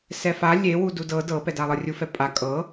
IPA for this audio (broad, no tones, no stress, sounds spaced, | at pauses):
s ɛ f a lʲ e w u d u d ɤ d ɤ p ɛ d a lˠ ɤ rʲ u f ɛ pʼ a kʼ ɤ